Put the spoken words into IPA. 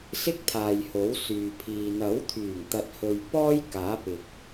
s ɪ˥ k̚ t̪ʰ aː˨ j h o˨˥ w s yː˨ pʰ iː˨ n̪ ɐ˨˥ w t̪ʰ yː˨˩ ŋ t̪ ɐ˨ t̚ h ɵ˨ ɥ p ɔː˥ j k aː˨˥ p ɪ˨ k̚

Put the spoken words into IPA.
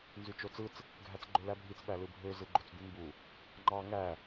n z y t͡ʃ o t͡s ɯ t͡s | ɡʱ æ t͡s ɡ͡ǃ ø l æ bʱ i t͡s ɓ æ l ɯ bʱ ø z ɯ ɡ͡ǃ o t͡s d̪ y m b u | ŋ͡ǃ ɑ ŋ æ

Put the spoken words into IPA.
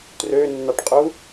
t r ø nː ɑ ʈ qʼ u

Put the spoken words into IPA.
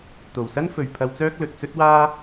t̪ o˨˩ w s ɐ˥ n f ɵ˨ ɥ pʰ ɐ˧ w t͡s œː˥ k̚ l ɵ˨ t̚ t͡s ɵ˥ t̚ w aː˥

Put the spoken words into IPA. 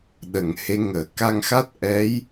ɗ ə˨˩˨ ŋ h e˧˥ ŋ əː˨˩˨ k a˧ ŋ x a˦˥ t̚ ʔ ɛ˧˥ j

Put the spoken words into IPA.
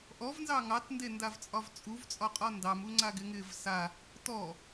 ʔ ɔ v n z ɑ ŋ ɑ t n d e n d a v t͡sʼ ɒ v t͡sʼ u v t͡sʼ ɒ qʼ ɒ n d ɑ m u ŋ͡ǀ a ɡ ɪ ŋ ɪː v s a | t ɔ

